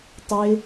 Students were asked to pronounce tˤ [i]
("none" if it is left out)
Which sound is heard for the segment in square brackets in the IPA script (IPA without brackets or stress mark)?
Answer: ɪ